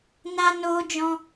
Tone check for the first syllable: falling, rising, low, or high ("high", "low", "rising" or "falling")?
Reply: high